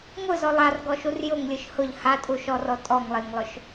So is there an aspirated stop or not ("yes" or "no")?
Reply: no